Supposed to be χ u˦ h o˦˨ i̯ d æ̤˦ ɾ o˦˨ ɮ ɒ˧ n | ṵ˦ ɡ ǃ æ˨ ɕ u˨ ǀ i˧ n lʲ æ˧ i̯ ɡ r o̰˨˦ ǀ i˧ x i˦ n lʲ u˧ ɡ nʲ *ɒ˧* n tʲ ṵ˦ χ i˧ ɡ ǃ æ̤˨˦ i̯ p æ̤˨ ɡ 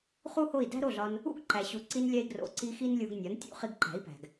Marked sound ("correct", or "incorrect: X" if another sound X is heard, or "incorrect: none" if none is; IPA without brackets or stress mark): incorrect: ɒ˨˦